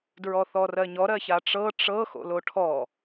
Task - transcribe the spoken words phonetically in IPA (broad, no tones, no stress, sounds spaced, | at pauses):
d ɹ ɔ θ ɔ r ɜ ɲ ɔ ɾ ɜ ç a ʈ͡ʂ ɤ ʈ͡ʂ ɤ x o̰ l o ʈʰ ɔ